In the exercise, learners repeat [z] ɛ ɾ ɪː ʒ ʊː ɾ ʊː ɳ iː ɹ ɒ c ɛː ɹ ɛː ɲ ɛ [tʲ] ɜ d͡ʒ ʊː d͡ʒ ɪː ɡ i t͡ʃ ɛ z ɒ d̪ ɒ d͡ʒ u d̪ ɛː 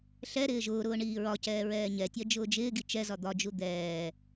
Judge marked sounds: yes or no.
no, yes

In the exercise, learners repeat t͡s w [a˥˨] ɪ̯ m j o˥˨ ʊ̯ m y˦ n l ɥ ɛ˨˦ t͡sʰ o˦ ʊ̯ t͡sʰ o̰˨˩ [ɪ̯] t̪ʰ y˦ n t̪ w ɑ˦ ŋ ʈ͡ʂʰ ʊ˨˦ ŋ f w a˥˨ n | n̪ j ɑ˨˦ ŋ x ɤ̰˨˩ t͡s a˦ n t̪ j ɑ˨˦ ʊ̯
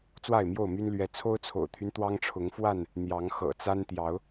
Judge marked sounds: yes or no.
yes, no

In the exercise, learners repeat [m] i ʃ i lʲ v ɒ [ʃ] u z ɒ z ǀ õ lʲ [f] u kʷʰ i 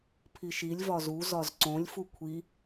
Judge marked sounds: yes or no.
no, no, yes

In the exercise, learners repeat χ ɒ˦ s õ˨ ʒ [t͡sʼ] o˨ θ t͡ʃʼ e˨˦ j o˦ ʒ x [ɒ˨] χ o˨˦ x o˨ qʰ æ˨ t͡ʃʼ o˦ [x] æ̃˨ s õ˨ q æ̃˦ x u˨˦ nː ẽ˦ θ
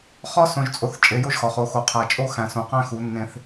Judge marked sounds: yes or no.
yes, yes, yes

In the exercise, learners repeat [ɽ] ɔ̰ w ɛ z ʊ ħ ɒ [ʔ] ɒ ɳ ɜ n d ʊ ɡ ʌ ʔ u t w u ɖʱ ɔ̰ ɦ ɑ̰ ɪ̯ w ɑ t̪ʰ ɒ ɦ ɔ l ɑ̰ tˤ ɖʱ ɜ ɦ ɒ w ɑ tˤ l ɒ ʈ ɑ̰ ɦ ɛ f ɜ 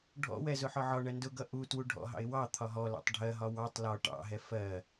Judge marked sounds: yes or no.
no, no

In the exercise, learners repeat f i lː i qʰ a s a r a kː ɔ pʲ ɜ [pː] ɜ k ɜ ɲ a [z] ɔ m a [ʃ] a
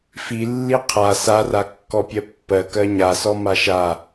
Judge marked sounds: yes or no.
yes, no, yes

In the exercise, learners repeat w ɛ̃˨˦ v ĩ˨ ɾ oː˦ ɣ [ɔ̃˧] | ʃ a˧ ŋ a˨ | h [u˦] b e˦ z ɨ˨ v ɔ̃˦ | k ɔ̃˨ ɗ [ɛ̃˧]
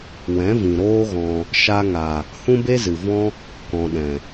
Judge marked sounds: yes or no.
yes, no, no

